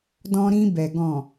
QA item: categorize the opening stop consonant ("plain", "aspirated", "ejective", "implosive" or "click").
plain